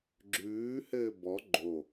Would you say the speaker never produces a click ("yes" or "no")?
no